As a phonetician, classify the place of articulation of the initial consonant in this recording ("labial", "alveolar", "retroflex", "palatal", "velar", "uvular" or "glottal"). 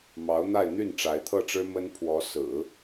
labial